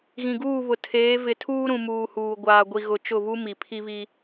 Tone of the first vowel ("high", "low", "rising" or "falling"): low